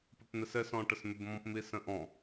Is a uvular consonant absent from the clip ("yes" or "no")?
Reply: yes